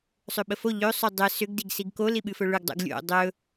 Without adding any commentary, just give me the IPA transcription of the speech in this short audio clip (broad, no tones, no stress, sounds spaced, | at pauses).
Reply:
sˤ ɵ ɓ ə f o ʎ ɵ sˤ ɵ dˤ ə s ʏ ɡ d i ɡ s i ɡ k o l i ɓ ɨ f ɵ ɭ ʏ ɡ dˤ o̰ ɡ lʲ o̰ dˤ ɵ